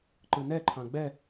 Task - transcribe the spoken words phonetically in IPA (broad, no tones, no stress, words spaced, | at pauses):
ǃɯnɛ ǃʰɑ̃ɡ͡bɛ